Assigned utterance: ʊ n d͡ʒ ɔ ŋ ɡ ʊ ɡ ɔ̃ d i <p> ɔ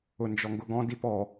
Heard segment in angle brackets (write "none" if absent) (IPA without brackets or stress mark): p